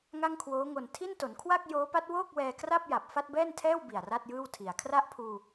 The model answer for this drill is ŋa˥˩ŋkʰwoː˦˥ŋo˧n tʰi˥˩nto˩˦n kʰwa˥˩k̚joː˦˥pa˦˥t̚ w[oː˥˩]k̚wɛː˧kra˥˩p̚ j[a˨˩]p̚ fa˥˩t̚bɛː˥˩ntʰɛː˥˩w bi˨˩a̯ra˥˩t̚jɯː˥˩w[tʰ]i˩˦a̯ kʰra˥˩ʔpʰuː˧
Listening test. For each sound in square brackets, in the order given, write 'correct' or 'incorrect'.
correct, correct, correct

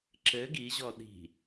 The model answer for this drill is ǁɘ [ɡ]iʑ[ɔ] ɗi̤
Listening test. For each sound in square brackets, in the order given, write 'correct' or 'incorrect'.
correct, correct

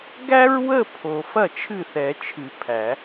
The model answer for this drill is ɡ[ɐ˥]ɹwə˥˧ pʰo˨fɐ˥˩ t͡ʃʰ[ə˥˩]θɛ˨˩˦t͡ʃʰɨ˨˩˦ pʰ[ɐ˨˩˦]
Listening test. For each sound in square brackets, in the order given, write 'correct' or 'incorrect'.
incorrect: æ˥, incorrect: ɨ˥˩, incorrect: æ˨˩˦

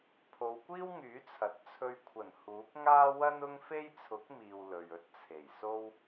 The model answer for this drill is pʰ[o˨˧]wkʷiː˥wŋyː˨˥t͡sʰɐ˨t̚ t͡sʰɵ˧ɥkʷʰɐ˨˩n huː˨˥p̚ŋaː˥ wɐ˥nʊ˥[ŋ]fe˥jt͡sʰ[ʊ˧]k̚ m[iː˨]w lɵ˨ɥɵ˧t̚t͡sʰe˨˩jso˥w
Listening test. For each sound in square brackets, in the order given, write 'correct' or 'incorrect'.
correct, correct, incorrect: ʊ˨˥, correct

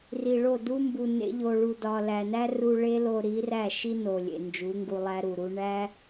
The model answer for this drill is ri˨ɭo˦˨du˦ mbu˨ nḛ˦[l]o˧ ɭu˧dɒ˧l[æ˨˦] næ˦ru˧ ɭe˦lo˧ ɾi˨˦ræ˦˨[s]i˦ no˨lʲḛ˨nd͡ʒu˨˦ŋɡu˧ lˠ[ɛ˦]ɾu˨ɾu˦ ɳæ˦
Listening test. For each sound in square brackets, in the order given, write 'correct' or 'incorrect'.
incorrect: ʎ, incorrect: æ˧, incorrect: ʃ, incorrect: æ˦

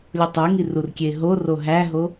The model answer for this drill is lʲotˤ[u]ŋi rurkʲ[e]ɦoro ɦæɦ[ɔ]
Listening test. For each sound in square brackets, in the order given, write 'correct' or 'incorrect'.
correct, correct, incorrect: o

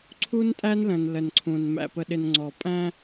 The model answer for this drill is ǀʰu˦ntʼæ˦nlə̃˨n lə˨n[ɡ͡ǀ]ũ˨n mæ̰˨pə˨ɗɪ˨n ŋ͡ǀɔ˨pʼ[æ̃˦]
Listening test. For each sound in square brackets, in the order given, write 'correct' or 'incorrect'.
incorrect: ǀʰ, correct

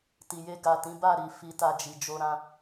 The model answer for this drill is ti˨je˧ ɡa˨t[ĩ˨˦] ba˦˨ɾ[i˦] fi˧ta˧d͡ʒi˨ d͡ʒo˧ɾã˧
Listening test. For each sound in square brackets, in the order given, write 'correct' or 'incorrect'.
correct, incorrect: i˨

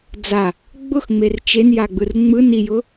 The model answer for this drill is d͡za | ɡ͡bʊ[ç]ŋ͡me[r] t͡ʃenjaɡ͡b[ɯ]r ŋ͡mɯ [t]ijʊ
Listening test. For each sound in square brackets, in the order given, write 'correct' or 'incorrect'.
incorrect: x, correct, correct, incorrect: n

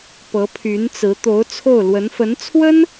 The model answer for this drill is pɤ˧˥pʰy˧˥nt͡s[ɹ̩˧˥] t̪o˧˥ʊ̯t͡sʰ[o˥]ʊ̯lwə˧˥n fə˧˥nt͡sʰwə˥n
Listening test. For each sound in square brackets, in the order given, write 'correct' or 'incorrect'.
correct, incorrect: o˥˩

